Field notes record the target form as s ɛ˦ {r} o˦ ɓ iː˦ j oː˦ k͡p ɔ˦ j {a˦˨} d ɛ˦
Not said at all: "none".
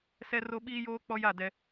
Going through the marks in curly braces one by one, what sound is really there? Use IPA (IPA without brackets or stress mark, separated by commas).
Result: r, a˦˨